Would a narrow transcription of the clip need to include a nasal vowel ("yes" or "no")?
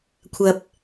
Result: no